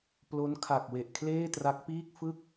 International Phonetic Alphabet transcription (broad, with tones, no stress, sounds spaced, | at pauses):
p l o˦˥ n kʰ a˨˩ k̚ w e˨˩ ʔ kʰ l eː˥˩ t r a˦˥ k̚ p iː˥˩ k̚ f ɯ˥˩ k̚